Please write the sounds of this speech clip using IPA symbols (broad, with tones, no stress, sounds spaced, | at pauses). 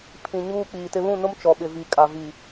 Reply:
pʰ ĩ˨ ɲ uː˦ k͡p iː˨ t ɪ˦ β ũ˦˨ n ʊ˦ m t͡ʃ ɔ˨ ɓ ɪ˨ v i˨ kʼ a˨ v i˨